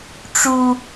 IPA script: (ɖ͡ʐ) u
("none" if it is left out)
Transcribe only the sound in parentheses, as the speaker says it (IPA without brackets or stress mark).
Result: ʈ͡ʂ